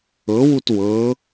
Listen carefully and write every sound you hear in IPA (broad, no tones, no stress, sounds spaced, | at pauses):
ɤ w u t w ɤ